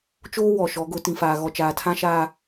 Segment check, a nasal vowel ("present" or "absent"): present